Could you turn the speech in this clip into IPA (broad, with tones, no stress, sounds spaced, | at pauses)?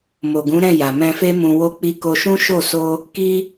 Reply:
m o˨ ɡ ũ˨˦ ɾ ɛ̃˦˨ j a˨ m ɛ̃˧ f e˦ m ũ˧ w o˧ k͡p i˧ k o˧ ʃ ũ˦ ʃ o˦˨ s o˧ | k i˦